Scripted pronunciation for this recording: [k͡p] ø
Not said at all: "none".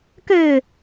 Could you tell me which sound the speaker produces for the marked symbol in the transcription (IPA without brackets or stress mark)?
k